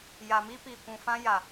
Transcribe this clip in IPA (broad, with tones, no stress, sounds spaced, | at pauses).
j a˨ m i˦ p i˨ kʷ ũ˨ f ã˦ j a˨